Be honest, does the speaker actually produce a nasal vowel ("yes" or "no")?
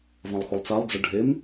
yes